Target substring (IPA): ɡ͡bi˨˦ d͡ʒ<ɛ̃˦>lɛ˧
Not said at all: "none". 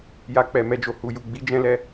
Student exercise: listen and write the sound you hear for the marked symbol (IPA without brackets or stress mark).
ɛ̃˦